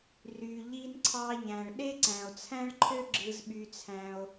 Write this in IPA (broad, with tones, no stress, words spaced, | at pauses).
ry˩ ʎi˧nǀʰɑ˧ʎæ̃˩ɭ ɗe˥ǀæ̃˩o̯t͡sʰæ̃˥ɭǃʰø˥ ɡ͡ǁɯ˧zɓy˧t͡sʰæ̃˧o̯